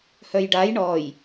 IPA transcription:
h œ j ɖ a j ɳ ɔ j

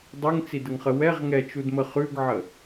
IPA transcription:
dˤ ʉ ŋ t͡s i d ə ŋ χ ə w ɛ ʁ ŋ ɛ t͡ʃ u d m ə χ ʉ ɡ ʕ ə

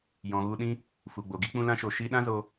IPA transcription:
j ɔ̃˨ ɣ u˧ ɗ ĩ˦ | f u˨ ɡ͡b o˨ ɡ i˦ k͡p ũ˧ l ã˧ ʃ o˨ ʃ i˧ ɗ ã˦ z o˧

